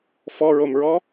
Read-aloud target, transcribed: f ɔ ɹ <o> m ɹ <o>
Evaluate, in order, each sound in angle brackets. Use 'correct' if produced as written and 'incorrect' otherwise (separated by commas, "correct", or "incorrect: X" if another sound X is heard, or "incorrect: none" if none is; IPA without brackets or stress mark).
correct, incorrect: ɔ